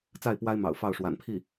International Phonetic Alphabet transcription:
t͡s a˥˩ ɪ̯ p w a˥ ɪ̯ m ɑ̰˨˩ ʊ̯ f ɑ˥˩ ʊ̯ ʂ w a̰˨˩ n pʰ i˥˩

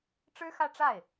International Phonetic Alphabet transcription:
ʈ͡ʂ ɻ̩˥ x ä˥˧ ʈ͡ʂ a˥˩ ɪ̯

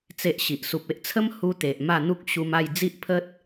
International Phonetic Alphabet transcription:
t͡s e˦ ʔ ɕ i˨ ʔ s u˨ p̚ e˦ ʔ t͡sʰ ə˦ m h u˦ t̪ e˨ ʔ m a˥˧ n̪ u˦ k̚ ɕ u˧ m a˥˧ j d͡z i˦ ʔ pʰ ə˦ t̚

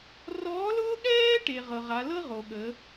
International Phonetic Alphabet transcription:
r ɔː˧˥ l ʊː˥ ɠ ɛː˥ ʈ e˩ ʁ ɤ˩ ʁ a˩˧ l ɤ˥ ʁ o˩ ɠ ə˩˧

